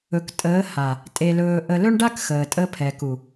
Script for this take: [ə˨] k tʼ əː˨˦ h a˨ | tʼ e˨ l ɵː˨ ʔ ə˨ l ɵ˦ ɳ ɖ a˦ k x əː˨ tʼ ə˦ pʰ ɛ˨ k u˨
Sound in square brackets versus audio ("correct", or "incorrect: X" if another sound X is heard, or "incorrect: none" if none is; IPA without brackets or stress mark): incorrect: ɵ˨